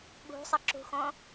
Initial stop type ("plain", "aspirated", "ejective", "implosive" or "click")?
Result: implosive